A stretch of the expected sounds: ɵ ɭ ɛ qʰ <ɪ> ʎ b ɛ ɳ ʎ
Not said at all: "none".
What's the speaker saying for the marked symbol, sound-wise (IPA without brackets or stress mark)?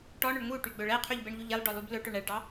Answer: y